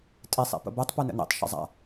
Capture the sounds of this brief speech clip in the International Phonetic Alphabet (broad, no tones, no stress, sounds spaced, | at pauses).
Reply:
tʼ i sˤ ḭ p ə̰ b ɛ tˤ p u n ə̰ n ḭ tˤ ʃ ə̰ zˤ a̰